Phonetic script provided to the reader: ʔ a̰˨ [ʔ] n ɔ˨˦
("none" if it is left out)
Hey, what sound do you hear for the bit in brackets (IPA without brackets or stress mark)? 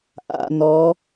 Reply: none